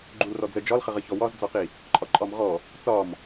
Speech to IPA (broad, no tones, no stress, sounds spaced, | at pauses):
ɡ͡ǃ u l r ɔ d͡z ə d͡ʒ ɒ l χ ə ʁ ə ç ɔ w ɒ z d͡z ɒ q i | ǃʼ ɒ ǃʼ ɒ m ʁ ɔ | t͡s ɒ m